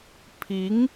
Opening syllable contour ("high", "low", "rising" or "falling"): rising